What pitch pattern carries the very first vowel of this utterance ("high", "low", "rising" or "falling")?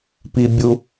low